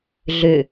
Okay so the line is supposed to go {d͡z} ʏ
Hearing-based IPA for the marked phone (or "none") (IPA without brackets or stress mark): ɮ